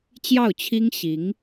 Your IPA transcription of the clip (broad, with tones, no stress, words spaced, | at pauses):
t͡ɕjɑ˥˩ʊ̯t͡ɕʰi˥ŋ ɕi˧˥ŋ